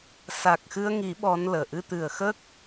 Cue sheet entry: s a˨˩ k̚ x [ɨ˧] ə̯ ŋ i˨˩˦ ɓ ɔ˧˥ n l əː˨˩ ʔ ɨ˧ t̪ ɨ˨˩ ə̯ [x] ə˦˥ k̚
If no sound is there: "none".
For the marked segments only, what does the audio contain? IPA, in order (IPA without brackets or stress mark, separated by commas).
ɨ˧, x